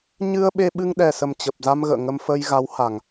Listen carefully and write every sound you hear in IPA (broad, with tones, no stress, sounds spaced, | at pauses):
ɲ ɨ˧ ə̯ ɓ e˧ ɓ ɨ˧ ŋ ɗ ɛ˨˩ s ə˨˩ m t͡ɕ ə˨˩ p̚ z a˧ m ɣ ə̰ː˧˨ ŋ ə˧ m f əː˧ j ɣ a˨˦ w h a˨˩ ŋ